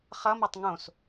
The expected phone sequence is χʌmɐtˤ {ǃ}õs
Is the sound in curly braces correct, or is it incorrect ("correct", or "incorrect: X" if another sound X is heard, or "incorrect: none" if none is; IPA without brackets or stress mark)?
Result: incorrect: ŋ